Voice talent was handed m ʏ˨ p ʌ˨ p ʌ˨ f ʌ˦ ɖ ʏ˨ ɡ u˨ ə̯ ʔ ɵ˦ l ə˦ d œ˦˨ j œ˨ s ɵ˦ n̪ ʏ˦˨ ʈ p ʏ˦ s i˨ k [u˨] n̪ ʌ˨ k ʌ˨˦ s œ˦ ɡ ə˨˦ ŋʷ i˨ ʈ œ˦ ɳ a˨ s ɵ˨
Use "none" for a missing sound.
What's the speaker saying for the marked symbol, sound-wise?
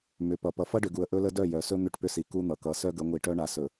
u˦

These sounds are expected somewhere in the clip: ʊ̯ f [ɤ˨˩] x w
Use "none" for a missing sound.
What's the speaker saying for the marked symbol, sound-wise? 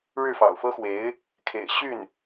ɤ˥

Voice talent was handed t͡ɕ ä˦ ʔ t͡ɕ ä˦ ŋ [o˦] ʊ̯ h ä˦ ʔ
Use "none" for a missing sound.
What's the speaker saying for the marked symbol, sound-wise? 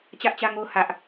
o˦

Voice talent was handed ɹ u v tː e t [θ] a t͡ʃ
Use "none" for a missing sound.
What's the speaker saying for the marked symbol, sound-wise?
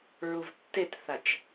θ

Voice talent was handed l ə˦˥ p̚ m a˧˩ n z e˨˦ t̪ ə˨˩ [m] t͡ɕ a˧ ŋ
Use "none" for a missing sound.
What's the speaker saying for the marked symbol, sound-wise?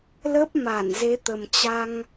m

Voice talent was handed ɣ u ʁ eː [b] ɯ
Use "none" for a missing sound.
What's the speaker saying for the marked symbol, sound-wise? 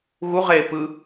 p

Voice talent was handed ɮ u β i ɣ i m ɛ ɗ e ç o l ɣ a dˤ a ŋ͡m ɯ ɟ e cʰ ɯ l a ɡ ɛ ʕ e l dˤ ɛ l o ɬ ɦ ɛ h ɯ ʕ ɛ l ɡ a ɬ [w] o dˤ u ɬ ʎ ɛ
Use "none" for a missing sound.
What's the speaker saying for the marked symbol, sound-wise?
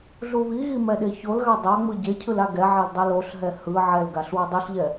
w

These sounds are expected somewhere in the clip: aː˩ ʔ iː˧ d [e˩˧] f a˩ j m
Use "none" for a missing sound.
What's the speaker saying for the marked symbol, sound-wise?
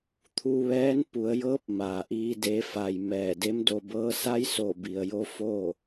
e˩˧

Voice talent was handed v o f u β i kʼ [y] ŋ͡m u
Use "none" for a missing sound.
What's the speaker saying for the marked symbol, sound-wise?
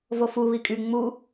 y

